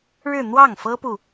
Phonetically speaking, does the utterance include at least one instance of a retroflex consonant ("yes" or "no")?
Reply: yes